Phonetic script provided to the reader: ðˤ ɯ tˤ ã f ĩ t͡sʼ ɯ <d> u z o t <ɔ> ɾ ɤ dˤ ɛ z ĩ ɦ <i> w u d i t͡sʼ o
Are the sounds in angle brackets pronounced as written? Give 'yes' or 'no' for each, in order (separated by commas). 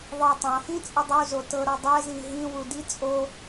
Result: no, no, no